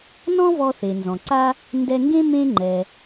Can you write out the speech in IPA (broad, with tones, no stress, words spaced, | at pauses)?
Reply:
nɔ̃˥vɔ˧θe˩ nzɔ̃˩ǀa˥ | ndɛ˧ŋɡẽ˥ mẽ˥ ŋ͡ǃɛ˩